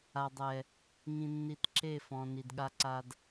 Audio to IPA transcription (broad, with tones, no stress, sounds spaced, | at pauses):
a˨ dˤ ɛ˨ | ŋ ĩ˨ nː i˨ t ǁ e˦˨ f ɔ̃˨ n i˨ d ɠ a˦ ǀ a˦ d